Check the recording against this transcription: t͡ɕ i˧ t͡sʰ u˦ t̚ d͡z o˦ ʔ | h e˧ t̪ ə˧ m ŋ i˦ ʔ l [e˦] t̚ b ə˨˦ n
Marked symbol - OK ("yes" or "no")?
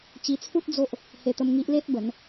yes